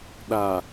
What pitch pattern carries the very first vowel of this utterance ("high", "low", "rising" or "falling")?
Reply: low